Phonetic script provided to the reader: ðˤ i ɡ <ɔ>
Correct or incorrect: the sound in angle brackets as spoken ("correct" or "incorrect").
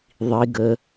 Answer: incorrect